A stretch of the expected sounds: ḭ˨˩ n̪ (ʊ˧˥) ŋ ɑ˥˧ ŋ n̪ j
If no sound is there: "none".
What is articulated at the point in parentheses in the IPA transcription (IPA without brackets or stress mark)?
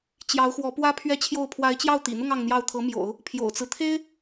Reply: ʊ˥˧